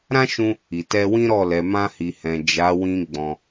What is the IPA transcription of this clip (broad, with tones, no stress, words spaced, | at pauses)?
ɾã˦ʃũ˧ | i˨tɛ˧wĩ˦ɾɔ˦˨ lɛ˨mã˧hi˨hɛ̃˨ d͡ʒa˨˦wĩ˧ ɡ͡bɔ̃˧